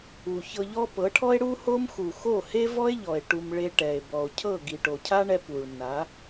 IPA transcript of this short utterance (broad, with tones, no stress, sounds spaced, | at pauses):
u˨ ç ɤ˧ ʎ ɔ˦ p ɤ˨˦ ʈʰ ɔ˦ e̯ ɽ u˦ h o˦ m x u˨ x o˦˨ h e˦ v ɔ˦ e̯ ʎ ɔ˨ e̯ ʈ u˧ m ɭ e˧ ʈ ɛ˨ e̯ b ɔ˨ o̯ cʰ ɤ˦˨ ɡ i˨ ʈ o˨ cʰ a˦ ɳ ɛ˧ p u˨ ɭ nː a˨˦